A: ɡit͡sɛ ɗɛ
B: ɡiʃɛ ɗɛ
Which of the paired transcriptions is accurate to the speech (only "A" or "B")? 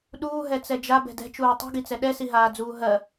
A